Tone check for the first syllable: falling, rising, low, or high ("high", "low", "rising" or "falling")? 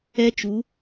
high